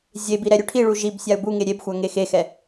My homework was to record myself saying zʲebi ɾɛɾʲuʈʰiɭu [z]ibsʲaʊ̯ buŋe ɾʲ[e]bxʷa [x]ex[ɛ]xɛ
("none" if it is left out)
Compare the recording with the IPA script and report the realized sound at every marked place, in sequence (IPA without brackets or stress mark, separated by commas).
ʒ, e, ŋ, e